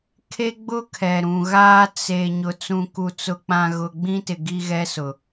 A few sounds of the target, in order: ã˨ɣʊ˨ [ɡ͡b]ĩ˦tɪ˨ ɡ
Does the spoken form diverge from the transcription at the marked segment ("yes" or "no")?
no